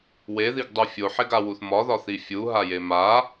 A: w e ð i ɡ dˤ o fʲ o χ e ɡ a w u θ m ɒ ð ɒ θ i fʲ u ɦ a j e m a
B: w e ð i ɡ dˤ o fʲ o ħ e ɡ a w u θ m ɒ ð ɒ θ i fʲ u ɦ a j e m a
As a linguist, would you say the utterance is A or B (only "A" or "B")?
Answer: B